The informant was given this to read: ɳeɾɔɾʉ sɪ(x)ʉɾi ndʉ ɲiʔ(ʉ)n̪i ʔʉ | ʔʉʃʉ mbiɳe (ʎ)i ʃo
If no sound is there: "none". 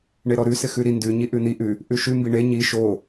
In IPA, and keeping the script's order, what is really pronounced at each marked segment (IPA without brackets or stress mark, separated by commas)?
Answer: x, ʉ, ɲ